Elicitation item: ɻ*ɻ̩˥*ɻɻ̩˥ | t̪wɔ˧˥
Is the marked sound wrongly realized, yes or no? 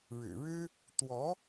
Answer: yes